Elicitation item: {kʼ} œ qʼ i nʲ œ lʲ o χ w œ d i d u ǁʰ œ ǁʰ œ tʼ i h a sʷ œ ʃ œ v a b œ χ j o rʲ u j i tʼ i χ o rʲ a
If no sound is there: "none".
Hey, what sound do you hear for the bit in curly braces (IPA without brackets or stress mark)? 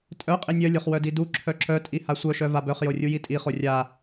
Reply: tʼ